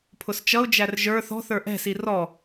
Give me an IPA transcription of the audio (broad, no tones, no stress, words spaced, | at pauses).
pʰʊst͡ʃʌʊ̯d͡ʒær ʒə˞ θɔ̤θə˞ ʔɛ̤si rɔ